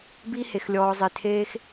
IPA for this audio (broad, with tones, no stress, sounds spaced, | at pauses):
b i˦ h e˧ x lʲ ɔː˧ zˤ e˧ tʰ eː˦ x